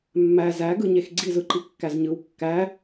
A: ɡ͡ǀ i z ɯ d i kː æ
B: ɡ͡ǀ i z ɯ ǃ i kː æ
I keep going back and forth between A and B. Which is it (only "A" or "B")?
B